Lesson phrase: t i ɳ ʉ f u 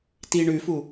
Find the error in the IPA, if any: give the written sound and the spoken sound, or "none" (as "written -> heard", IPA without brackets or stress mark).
none